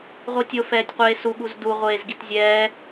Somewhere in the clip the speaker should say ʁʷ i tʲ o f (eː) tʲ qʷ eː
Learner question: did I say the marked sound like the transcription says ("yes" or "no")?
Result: no